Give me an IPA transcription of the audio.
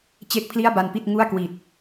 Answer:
t͡ɕ e˥˩ k̚ pʰ l i˥˩ a̯ b a˧ n p i˥˩ t̚ ŋ u˥˩ a̯ k w i˨˩ t̚

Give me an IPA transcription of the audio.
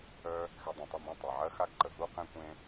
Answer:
œ˦ | x ɛ˧ dˤ ũ˨ tˤ ɵ˦˨ m ẽ˦˨ tˤ e˨ ʕ ɜ˦ x a˦ ɡ ǃ ə˨ ɦ u˦ q ẽ˦ kʷ ẽ˦

